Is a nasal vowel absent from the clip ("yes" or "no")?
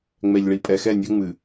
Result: yes